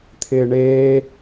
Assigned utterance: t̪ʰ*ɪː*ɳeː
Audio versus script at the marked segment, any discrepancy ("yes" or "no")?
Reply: no